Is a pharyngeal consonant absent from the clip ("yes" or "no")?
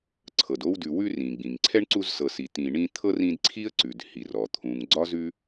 yes